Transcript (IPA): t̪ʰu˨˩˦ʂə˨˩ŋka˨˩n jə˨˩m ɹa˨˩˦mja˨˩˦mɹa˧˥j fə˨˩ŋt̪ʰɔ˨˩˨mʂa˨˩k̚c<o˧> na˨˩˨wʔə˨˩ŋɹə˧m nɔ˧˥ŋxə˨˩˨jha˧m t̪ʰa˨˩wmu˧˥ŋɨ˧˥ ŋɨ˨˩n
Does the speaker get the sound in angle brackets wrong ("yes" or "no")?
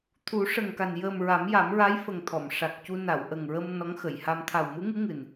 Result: yes